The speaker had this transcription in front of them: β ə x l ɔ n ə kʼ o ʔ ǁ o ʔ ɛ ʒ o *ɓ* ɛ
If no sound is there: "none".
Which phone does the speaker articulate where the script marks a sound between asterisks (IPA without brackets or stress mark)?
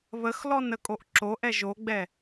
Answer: ɡ͡b